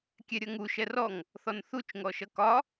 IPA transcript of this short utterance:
kʲ ɛ ɾʲ ʌ ŋ u ʃ ɛ r ɔ ŋ | θ ɔ n θ u t͡ʃ ŋ ɔ ʃ ʌ k ɒ

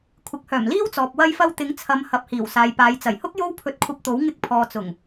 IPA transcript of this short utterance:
kʷʰ ɪ˨ k̚ h œː˨˩ m l iː˥ w t͡s ɔː˨ p̚ w ɐ˧ j f ɐ˧ w t̪ ɪ˨˥ ŋ t͡sʰ ɐ˨˧ m h ɐ˨˥ p̚ h iː˨˩ w s aː˨ j p aː˨˧ j t͡s ɐ˨˩ j h ʊ˥ k̚ j o˥ w pʰ ɵ˧ t̚ kʷʰ ɐ˧ p̚ t̪ o˨˥ w ŋ ɪ˧ k̚ pʰ ɔː˨ t͡s ʊ˨˩ ŋ

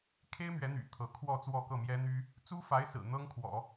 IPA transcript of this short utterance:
kʰ e˥ ɪ̯ m ɥ ɛ˧˥ n̪ y̰˨˩ t̪ʰ ɤ˧˥ kʰ w ɔ˥˧ t͡s w ɔ˥˧ k ɤ˥˩ m j ɛ˥ n̪ y˥ | t͡s u˥ f a˧˥ ɪ̯ s ɹ̩˨˩ n̪ ɤ˥ ŋ kʰ w ɔ̰˨˩˦

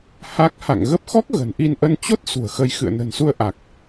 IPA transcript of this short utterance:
h a˦˥ k̚ h a̰˧˨ ŋ ɣ ə˦˥ p̚ x ɔ˦˥ k̚ ɣ ə̤˨˩ n ʔ i˧ n ʔ ə˧ n t͡ɕ o˦˥ t̚ s ṳ˨˩ ə̯ x ə˧ j x ɨ̰˧˨ ə̯ n ə̤˨˩ n s u˧ ə̯ ʔ a˨˩ k̚

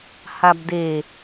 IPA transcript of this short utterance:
h a b d e

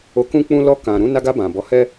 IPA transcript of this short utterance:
o˧ k ũ˦ k͡p ũ˦ l ɔ˧ k ã˨ ɾ ũ˨˦ n a˧ ɡ a˧ b ã˨ b ɔ˨˦ h ɛ˦

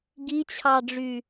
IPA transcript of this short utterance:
ɡ i t͡ɕʰ ɑ ɖ͡ʐ y

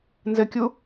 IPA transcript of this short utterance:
n z ɘ kʲ u

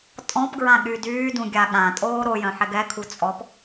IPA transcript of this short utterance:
tʼ ɔ̃ p ɡ ɹ ã ɠ y d yː d ũ ɡʲ a ɠ ã tʼ oː ɾ o j œ̃ ħ ɛ ɡ ɛ kʰ u t͡sʼ ɔ p

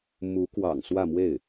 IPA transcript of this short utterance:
m u˧˥ k w ɑ̰˨˩ ŋ s w ä˥˧ m w e˥˩ ɪ̯

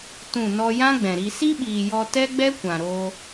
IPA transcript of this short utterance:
t ũ˦˨ n ɔ˧ j ã˦ ɡ͡b ɛ̃˨ ɾ i˧ s i˦ ɓ iː˨ j ɔ˧ t ɛ˦ ɡ͡b ɛ˦ kʷ ã˨ ɾ oː˧

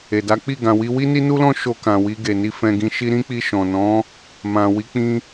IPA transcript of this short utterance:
e˨ d a˨˦ k͡p i˦˨ ɡ ã˨ w i˧ w i˦ n i˦ n u˦ l ɔ̃˦ ʃ o˧ k ã˨ w i˧ ɡ e˨ n i˧ f ɛ̃˧ ɡ ĩ˧ ʃ i˦ ɾ ĩ˦ k͡p i˧ ʃ ɔ̃˨ n ɔ̃˨˦ | m ã˨ w i˨˦ k͡p ĩ˧

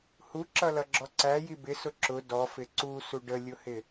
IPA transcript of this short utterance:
h u ǁ ʌ l ʌ ɡ͡ǁ ɔ ǀ æ j i b ɪ s ʊ ǁ ʊ d ɔ f ɪ ǀ u s u ɖ ə lʲ ʊ h ɪ

